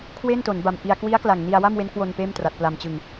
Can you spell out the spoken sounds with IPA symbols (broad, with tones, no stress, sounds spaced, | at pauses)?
kʰ w e˥˩ n t o˩˦ n b a˨˩ m ʔ i˧ a̯ k w i˦˥ a̯ k l a˨˩ ŋ n i˧ a̯ w a˥˩ m w e˦˥ n k w o˧ n p eː˥˩ m t r a˨˩ t̚ p l a˧ m t͡ɕ ɯ˧ ŋ